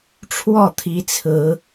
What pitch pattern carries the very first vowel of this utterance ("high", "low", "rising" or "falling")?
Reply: falling